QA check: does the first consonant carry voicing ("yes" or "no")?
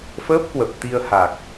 no